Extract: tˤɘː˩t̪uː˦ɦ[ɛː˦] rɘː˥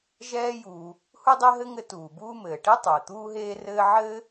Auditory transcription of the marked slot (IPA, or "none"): eː˦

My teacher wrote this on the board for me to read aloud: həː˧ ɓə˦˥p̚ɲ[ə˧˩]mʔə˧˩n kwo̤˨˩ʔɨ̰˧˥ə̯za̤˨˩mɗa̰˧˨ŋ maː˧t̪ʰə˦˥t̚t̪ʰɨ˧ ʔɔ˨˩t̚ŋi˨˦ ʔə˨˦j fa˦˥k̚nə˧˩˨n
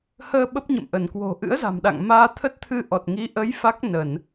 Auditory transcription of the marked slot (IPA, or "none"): ə̰˧˨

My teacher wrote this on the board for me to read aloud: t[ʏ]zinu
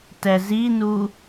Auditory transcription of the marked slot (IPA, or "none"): ɛ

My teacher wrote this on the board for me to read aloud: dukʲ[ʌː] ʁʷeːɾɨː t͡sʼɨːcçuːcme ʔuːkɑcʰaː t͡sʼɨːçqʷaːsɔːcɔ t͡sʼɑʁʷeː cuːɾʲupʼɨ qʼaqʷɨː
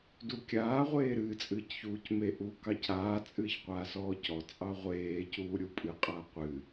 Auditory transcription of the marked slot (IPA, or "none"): aː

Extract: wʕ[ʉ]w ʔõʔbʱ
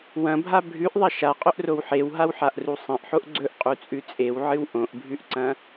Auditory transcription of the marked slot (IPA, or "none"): ɨ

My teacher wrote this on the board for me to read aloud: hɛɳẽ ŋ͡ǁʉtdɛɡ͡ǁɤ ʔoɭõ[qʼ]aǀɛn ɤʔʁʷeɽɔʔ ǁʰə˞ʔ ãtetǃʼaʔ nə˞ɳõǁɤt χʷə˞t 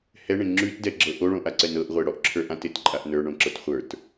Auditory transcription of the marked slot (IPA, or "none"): ʔ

